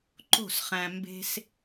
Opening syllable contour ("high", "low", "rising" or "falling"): falling